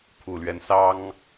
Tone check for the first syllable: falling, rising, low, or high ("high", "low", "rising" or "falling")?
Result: low